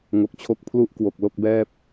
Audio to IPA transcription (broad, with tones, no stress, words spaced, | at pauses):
ŋo˨˩k̚t͡ɕʰo˦˥k̚ pʰlu˦˥ʔ kwo˨˩k̚lo˥˩k̚bɛː˥˩p̚